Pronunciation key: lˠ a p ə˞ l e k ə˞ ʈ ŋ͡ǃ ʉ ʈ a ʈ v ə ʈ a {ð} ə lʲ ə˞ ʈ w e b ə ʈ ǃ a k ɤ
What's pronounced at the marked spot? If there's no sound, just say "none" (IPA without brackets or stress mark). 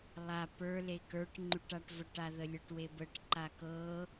ð